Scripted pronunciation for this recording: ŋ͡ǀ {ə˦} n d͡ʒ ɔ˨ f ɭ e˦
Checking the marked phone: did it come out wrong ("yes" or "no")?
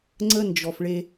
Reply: no